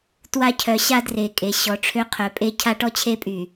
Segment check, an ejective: present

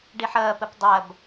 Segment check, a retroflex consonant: present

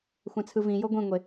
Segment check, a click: absent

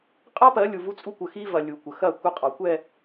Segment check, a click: absent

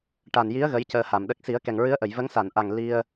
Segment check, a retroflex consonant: present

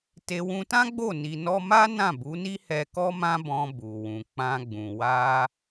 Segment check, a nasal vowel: present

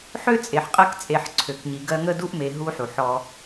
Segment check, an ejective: present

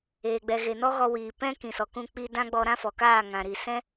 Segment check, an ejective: absent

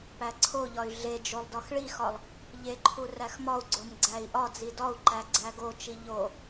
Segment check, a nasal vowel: absent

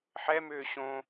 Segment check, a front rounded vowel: present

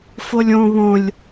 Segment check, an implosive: absent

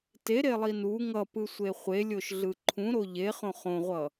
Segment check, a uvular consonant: present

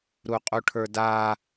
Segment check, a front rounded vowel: absent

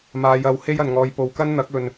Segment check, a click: absent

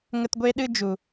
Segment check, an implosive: present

